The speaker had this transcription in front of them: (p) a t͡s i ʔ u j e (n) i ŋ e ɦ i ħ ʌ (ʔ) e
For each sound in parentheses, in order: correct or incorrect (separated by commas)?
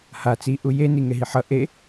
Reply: incorrect, correct, correct